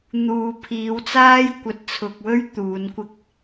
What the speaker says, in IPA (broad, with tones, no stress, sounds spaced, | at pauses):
n̪ uː˨ pʰ iː˨˧ w t͡s aː˥ j kʷ ɐ˨ t̚ t͡sʰ ʊ˨ k̚ w ɵ˥ ɥ t̪ uː˨˧ n kʷ ɪ˧ k̚